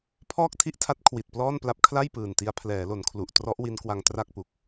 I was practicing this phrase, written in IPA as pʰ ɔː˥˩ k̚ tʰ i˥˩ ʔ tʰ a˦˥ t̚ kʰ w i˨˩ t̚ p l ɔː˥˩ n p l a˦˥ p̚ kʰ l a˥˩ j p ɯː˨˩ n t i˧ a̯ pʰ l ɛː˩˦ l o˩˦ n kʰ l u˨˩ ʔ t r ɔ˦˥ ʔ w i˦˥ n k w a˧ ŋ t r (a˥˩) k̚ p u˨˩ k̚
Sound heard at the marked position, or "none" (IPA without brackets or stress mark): a˥˩